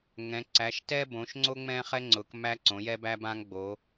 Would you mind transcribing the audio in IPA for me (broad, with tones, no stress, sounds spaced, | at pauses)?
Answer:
ŋ ɛ̃˩˧ ǀ æ˩˧ ʃ t ɛ˦ b õ˩˧ ʃ ŋ͡ǀ o˦ ŋ͡m ɛ̃˦ χ ɛ˦ ŋ͡ǀ ʊ˩˧ k m æ˦ ǀ õ˩˧ j ɛ˦ b æ˦ b ã˦ ŋ ɡ͡b o˩˧